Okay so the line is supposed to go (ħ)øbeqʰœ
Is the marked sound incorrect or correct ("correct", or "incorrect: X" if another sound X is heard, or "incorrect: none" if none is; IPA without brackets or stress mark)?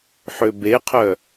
correct